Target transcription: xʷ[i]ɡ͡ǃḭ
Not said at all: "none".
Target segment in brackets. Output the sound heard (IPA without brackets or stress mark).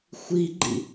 i